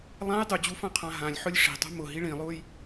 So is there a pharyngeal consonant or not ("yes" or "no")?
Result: yes